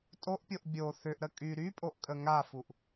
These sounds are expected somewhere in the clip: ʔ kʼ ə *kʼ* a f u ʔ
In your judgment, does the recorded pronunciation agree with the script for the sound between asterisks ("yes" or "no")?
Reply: no